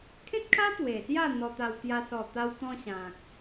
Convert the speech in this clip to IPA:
kʰ ẽ˦ t̚ kʰ a˦ t̪ w e˨˩ s j a˥˧ n̪ ɔ˧ t̪ a˧ w t̪ j a˧ s ɔ˨˩ t̪ a˧ w t̪ ɔ̃˧ ɕ ã˨ k̚

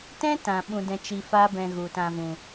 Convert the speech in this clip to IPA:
t ɛ̃˦ t ã˨ ɓ ũ˧ d ɛ̃˧ t͡ʃ i˧ f a˦ b ɛ̃˧ ɣ u˨ t ã˧ v ũ˨

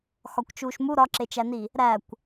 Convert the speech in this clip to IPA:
x ɒ kʷ t͡ʃ uː ʃ m u ɾ ɒ ǁ e t͡ʃ æ n i | ɾ æ kʷ

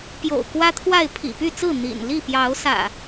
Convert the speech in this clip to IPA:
p j o̰˨˩ ʊ̯ k w ä˦ t̪ʰ w a˥˨ ɪ̯ pʰ ḭ˨˩ p y˥˨ t͡s ɹ̩˥˨ n̪ ḭ˨˩ n l i˥˨ p j ɑ˨˦ ʊ̯ s ä̰˨˩

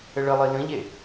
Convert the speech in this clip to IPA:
ɘ ɭ ɘ lˠ i l ə̃ ʎ e

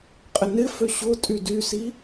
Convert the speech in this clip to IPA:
qʼ ɪ n ɪ f ø ɕ ʊ tʼ y d y s i

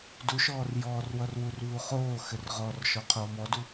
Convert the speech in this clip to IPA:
d u ʃ ɔː r j ɔː r w ʌ r w u r β u χ oː x ɘ r ʁ ɔ r ʃ ɔ qʰ oː m ɔ d u

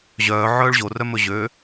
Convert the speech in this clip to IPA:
ʑ œː ʕ œː ɭ ʑ o r œ m ɵ ʑ ø

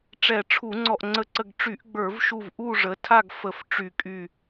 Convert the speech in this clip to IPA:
ʈ͡ʂ ɛ˧˩˧ ʈ͡ʂʰ u˧˩˧ ŋ͡ǀ ɔ˧˩ ʔ ŋ͡ǀ ə˧˩ ǀ ə˧˩ ɡ ʈ͡ʂ y˧˩˧ ʔ ɡ͡b ə˞˧˩˧ v ʃ u˧˩ v ʔ u˥˨ ʐ ə˩˥ tʰ a˥˨ ɡ f ə˧˩˧ f ʈ͡ʂ y˧˩˧ kʼ y˧˩

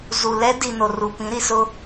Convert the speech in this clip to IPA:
z u˨ l ɛ˦ d i˨ n o˨ r u˨ p ĩ˨˦ ɾ i˨ s ʊ˦

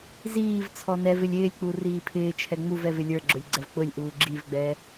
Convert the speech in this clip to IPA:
z iː v t͡sʰ ɔ n ɛ v ɪ lʲ ɪː lʲ k͡p u r iː pʰ ɪː t͡ʃʰ ɛ ŋ͡m u v ɛ v ɪ lʲ ə˞ ɡ͡ǁ ʊ lʲ ɡ͡ǀ ɛ v k͡p ʊ lʲ ʔ uː ɡ͡ǁ i v ɡ͡b ɛː

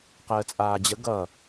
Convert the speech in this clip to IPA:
q əː t͡sʼ aː d͡ʑ ə ɡ ʌ

